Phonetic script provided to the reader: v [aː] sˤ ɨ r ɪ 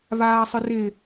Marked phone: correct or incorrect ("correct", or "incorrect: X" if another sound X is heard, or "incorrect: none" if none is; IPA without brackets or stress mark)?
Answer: correct